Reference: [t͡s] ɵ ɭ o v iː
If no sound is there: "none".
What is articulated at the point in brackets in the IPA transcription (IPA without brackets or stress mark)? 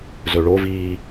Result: z